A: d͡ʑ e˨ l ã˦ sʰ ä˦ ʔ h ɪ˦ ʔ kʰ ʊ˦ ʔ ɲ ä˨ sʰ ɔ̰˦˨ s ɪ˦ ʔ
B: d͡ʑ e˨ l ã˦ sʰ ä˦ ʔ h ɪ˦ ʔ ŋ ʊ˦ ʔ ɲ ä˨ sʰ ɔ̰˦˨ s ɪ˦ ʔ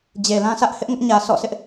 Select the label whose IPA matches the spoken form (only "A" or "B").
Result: B